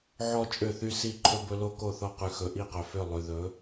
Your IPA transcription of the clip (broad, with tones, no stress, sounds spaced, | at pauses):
ʕ ɔ˦ t͡ʃʼ ø˦˨ θ y˦ s i˦˨ ǃʰ ɵ˦ b ɵ˦ l o˦ k o˦˨ θ ɔ˦ q ʉ˨ x ɵ˨ ʔ i˦˨ q œ˨ f ø˦˨ lˠ ʉ˨ ð ɵ˨˦